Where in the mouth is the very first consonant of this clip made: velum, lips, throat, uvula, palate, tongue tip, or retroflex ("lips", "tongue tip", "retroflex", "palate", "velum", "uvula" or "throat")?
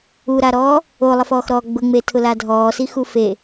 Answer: tongue tip